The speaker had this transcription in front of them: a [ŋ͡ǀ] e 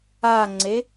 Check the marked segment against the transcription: correct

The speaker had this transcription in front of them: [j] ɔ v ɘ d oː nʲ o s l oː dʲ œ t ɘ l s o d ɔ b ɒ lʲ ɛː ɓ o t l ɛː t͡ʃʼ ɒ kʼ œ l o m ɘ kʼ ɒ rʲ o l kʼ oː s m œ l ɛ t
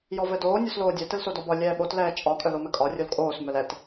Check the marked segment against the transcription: correct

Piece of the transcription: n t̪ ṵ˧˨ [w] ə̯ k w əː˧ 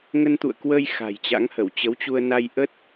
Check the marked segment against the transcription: incorrect: none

